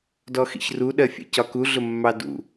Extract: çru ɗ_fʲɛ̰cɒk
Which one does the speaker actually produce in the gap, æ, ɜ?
ɜ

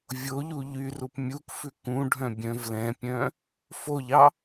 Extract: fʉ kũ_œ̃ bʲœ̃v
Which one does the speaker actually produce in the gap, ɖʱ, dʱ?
ɖʱ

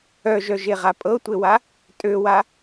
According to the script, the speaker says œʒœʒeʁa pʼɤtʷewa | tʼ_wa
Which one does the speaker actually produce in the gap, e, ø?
ø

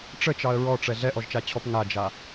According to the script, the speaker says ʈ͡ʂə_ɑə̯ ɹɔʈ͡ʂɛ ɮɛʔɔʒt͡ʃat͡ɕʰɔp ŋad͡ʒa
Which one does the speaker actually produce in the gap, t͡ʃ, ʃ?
t͡ʃ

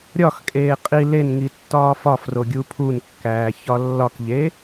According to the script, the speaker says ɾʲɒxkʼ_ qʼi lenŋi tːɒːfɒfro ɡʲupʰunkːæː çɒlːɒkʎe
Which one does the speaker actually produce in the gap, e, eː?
eː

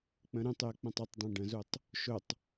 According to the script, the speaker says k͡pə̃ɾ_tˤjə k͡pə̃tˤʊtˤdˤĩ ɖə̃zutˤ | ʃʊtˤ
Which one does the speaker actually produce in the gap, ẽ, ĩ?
ĩ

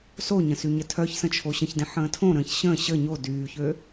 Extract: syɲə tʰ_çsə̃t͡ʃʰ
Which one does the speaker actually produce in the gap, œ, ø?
œ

